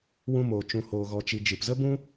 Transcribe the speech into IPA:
w ũ˦ m oː˧ t͡ʃ ũ˧ h oː˧ ɣ ɔ˧ t͡ʃ i˧ d͡ʒ ɨ˨ p z ə˦ b ũ˦

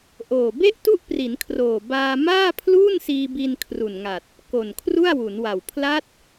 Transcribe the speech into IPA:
ʔ oː˨˩ b e˥˩ ʔ t u˥˩ ʔ p r i˩˦ n kʰ r oː˨˩ b aː˧ m aː˥˩ pʰ l uː˥˩ n s iː˧ b i˧ n kʰ r u˨˩ n ŋ a˨˩ t̚ | k o˨˩ n kʰ r u˥˩ a̯ w u˩˦ n w a˨˩ w pʰ l a˦˥ t̚

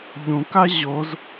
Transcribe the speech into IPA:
ʎ ũ k a ʑ o z

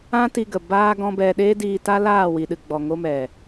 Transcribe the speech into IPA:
ã˦ t i˧ ɡ ə˨ b aː˧ ɡ ɔ̃˦ b ɛ˧ ɗ eː˦ d iː˧ t a˦ l aː˦˨ w i˨ ɗ ɨ˨ ɡ͡b ɔ˨ ŋ o˧ m ɛ˨

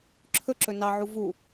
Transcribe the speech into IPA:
ǁʰ ɵ ǁ ɵ n ɑ ʕ u v u

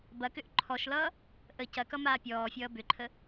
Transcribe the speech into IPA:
b ɐ k ʏ ʔ ǃʰ ɔ ʃ l ʌː | ʔ ə c ɐ k ʌ m aː pʲ ɔː fʲ ʌː b ʏ ǃʰ ə

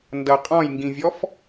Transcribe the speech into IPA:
n d ʌ qʼ ɔ̃ j ŋ ɡ ĩ vʲ ɔ f

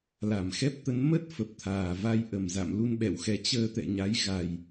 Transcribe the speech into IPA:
l a˧˩ m x ɛ˦˥ p̚ t̪ ə˨˦ n m ə˦˥ t̚ f ə˨˩ p̚ t̪ʰ aː˨˩ v a˧ j ʔ ə˧˩ m z a̰˧˨ m l u˧ n ɓ ɛ̰˧˨ w x ɛ˨˦ t͡ɕ əː˧ t̪ ɛ̰˧˨ ɲ a˨˦ j ɣ a˨˩ j

